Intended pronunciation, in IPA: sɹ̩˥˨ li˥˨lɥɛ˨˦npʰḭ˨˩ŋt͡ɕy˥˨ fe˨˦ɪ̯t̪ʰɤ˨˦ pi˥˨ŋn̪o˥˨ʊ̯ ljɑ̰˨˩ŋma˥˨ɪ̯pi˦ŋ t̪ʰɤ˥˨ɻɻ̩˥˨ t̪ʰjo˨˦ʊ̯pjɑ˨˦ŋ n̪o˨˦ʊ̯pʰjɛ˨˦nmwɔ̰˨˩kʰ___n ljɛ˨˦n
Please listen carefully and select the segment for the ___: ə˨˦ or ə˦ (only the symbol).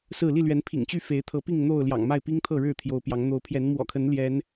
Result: ə˨˦